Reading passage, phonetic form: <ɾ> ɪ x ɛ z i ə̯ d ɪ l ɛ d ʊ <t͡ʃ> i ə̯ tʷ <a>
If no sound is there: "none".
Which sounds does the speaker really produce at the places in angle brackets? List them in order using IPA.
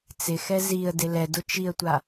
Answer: t͡s, t͡ʃ, a

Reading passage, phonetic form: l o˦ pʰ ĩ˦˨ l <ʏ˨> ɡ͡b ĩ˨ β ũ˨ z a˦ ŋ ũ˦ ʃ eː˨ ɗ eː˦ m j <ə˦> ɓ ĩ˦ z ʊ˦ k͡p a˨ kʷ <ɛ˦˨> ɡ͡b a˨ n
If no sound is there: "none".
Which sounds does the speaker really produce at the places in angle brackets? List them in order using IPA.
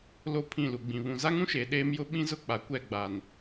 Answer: u˨, ʊ˦, ɛ˦˨

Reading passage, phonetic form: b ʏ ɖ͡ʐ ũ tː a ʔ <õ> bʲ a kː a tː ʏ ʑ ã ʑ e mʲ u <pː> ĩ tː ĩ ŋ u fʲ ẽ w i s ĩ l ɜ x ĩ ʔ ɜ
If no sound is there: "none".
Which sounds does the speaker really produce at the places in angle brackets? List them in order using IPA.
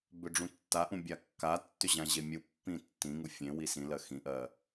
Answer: ũ, pː

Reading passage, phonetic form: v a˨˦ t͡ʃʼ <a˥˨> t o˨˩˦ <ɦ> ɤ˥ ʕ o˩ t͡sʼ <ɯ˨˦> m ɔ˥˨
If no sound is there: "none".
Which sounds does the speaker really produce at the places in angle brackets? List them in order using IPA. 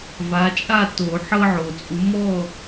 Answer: a˥˨, ħ, u˨˦

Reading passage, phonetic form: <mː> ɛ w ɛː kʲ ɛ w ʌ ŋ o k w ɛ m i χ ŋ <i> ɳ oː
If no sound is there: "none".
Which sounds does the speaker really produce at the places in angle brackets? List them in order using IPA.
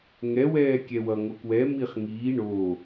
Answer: ŋ, iː

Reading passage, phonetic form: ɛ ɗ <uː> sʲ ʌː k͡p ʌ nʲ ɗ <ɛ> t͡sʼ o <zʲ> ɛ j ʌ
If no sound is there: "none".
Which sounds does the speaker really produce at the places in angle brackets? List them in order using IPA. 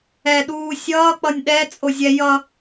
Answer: uː, ɛ, zʲ

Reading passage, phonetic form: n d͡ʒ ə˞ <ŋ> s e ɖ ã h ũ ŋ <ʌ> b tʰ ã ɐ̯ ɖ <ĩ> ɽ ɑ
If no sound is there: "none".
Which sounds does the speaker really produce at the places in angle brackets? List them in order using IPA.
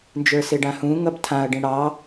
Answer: none, ʌ, ĩ

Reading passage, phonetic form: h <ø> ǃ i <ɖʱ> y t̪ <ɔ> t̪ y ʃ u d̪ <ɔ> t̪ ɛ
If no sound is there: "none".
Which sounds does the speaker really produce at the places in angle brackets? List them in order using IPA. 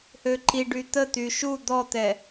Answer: ø, ɖ, ə, ɔ

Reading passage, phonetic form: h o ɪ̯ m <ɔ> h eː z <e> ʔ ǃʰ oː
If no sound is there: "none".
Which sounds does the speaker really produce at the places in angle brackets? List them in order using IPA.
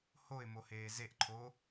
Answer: o, e

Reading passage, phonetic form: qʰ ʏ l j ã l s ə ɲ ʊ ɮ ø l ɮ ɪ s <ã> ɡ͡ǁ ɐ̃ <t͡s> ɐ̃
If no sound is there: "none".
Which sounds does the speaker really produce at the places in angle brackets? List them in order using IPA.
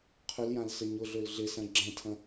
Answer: ɐ̃, tʰ

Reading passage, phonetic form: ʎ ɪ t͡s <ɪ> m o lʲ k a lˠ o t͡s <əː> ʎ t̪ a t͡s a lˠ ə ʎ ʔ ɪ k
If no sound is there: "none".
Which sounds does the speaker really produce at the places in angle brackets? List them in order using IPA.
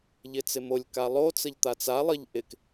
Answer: ɪ, ə

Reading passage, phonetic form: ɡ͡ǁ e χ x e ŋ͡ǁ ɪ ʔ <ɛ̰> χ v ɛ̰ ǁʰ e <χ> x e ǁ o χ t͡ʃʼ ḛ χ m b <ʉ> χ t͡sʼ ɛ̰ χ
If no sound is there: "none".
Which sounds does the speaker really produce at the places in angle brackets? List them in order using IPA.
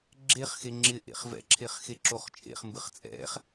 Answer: ḛ, χ, ɨ

